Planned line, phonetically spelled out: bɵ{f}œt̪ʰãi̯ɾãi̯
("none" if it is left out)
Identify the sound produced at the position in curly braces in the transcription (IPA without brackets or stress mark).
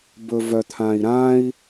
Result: v